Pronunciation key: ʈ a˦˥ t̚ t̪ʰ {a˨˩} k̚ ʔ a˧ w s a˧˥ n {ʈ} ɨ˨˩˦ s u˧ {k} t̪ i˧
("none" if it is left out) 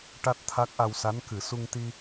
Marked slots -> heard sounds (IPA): a˦˥, k, ŋ

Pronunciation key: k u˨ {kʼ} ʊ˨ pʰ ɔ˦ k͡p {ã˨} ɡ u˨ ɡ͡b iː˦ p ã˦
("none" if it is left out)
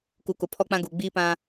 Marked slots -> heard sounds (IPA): k, ã˦

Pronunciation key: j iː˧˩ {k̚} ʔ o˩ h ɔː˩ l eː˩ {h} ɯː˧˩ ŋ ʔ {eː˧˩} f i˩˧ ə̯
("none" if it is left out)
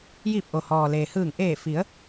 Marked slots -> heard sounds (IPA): p̚, h, eː˧˩

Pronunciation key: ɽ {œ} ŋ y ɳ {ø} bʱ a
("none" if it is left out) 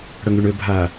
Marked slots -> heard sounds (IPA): œ, ø

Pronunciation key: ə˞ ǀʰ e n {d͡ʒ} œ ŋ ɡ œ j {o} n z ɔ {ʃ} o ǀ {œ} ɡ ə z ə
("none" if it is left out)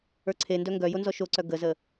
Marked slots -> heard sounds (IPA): d, o, ʃ, œ

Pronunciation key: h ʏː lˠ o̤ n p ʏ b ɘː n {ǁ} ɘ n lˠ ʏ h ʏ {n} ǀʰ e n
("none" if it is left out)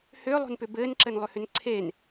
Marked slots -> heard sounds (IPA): ǁ, n

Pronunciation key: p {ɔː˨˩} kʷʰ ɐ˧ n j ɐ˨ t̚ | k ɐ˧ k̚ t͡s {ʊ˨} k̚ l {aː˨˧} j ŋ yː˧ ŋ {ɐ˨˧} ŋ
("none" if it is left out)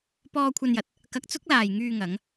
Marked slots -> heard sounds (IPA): ɔː˧, ʊ˥, aː˨, ɐ˨˧

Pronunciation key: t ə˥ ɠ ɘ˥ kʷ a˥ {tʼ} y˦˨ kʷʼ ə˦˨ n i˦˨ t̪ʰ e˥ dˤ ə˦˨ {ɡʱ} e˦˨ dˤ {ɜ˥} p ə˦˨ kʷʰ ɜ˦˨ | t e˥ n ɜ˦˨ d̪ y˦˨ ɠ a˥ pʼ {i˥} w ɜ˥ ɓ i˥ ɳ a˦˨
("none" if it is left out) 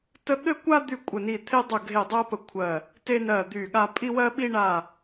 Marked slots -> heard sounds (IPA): d̪, ɡʱ, ɜ˥, i˥

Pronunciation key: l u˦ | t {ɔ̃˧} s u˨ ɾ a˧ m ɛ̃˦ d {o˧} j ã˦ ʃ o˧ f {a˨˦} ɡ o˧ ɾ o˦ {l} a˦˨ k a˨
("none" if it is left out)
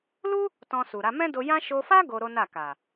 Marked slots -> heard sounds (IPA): ɔ̃˧, o˧, a˦, n

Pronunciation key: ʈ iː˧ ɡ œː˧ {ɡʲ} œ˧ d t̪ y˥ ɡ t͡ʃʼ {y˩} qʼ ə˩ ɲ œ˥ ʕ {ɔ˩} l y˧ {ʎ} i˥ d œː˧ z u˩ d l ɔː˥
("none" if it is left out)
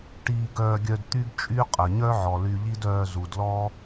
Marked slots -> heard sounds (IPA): ɡʲ, y˥, ɔ˩, ʎ

